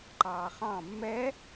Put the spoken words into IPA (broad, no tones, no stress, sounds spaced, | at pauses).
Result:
ǃ ɑː χ ɑ̃ mː ɛ